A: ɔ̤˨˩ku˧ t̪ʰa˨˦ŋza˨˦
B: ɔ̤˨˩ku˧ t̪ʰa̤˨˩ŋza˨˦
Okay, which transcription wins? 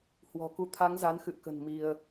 A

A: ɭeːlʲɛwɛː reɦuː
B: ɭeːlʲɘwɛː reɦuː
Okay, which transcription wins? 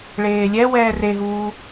A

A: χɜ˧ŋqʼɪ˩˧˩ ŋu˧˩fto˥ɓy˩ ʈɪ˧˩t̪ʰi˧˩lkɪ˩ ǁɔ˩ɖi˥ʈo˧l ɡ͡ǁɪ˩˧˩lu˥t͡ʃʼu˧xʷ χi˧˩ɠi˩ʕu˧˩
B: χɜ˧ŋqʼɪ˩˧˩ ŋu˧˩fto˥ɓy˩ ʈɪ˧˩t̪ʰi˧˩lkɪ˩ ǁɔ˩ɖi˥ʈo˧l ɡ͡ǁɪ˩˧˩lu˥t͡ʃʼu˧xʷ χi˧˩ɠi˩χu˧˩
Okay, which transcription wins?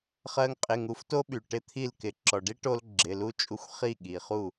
B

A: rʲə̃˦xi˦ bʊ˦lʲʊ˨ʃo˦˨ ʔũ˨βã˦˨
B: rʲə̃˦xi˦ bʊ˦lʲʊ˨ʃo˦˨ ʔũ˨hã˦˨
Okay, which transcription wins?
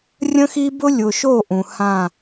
B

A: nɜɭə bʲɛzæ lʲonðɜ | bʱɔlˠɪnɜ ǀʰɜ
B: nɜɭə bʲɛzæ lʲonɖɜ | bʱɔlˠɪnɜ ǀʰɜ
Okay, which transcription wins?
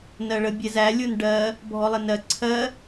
B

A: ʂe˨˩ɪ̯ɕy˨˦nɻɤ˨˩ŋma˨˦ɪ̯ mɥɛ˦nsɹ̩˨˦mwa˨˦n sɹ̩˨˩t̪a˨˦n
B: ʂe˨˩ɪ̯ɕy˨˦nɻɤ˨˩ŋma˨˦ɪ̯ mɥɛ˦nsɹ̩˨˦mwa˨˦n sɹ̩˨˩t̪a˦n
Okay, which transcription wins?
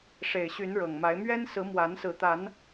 A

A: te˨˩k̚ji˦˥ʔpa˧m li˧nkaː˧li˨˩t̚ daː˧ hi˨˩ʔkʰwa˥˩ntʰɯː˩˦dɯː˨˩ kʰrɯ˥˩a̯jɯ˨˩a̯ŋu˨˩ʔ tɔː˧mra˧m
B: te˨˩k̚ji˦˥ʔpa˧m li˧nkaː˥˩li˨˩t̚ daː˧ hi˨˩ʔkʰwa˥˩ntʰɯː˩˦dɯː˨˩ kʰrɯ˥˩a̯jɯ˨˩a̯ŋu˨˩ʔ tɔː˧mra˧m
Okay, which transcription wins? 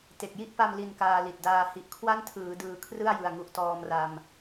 A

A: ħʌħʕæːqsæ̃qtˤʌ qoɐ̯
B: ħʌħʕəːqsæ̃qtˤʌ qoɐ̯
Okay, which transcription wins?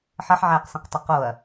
A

